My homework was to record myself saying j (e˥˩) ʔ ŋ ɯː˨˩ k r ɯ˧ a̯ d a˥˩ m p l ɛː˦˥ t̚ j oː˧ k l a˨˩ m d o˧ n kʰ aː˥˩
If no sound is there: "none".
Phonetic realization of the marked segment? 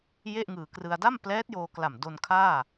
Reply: e˥˩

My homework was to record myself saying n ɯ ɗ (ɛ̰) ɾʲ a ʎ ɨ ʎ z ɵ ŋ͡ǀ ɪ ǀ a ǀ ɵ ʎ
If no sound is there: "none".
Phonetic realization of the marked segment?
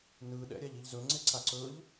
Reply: ɛ̰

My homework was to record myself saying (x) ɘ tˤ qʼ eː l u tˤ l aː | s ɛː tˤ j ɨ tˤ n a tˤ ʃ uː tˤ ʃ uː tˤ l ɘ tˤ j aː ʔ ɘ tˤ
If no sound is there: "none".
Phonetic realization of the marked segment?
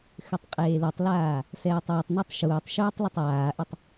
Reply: x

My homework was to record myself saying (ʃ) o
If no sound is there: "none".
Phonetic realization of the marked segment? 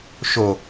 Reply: ʃ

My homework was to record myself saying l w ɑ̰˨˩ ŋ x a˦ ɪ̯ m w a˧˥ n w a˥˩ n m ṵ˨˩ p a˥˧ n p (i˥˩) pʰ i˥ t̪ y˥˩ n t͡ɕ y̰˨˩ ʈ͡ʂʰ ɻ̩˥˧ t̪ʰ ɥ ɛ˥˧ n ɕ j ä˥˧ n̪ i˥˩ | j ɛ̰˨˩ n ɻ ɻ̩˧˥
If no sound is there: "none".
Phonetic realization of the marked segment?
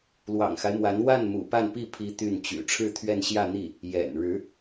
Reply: i˥˩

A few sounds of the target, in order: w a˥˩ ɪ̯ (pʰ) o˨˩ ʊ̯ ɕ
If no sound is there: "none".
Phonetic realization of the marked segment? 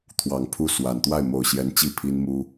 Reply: m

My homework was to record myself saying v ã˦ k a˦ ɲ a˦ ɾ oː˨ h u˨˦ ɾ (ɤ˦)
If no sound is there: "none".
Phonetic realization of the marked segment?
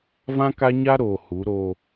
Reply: o˦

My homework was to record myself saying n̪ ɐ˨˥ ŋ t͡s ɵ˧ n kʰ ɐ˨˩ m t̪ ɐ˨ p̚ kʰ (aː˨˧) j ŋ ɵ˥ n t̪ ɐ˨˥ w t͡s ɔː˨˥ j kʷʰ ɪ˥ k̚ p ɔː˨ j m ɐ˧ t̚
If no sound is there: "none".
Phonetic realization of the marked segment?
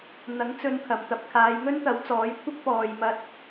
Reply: aː˨˧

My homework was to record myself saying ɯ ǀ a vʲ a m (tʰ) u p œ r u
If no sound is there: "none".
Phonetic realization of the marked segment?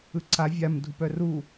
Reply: dʱ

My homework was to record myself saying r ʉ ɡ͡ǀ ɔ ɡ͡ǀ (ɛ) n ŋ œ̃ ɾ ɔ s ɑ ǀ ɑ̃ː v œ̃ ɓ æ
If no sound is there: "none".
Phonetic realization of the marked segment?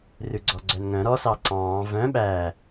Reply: œ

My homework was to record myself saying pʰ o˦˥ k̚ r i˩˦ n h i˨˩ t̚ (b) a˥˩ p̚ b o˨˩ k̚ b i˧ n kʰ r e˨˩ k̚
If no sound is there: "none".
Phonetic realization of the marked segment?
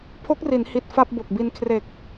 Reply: f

